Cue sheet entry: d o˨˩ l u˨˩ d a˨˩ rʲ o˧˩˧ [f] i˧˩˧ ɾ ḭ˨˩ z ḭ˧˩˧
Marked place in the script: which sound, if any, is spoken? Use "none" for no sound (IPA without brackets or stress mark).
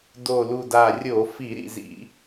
f